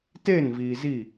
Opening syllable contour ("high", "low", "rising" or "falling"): falling